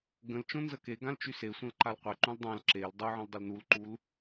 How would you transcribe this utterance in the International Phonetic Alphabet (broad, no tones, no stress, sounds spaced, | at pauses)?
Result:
ɡ ə̃ l t͡ʃ õ n z ə k e ɡ ã l t͡ʃ y s e sʷ ə̃ l ǃ a l qʷ e ǃ ũ l dˤ ã l ǁ e l dˤ u ʕ ə̃ l dˤ ə l n u l ǃ u l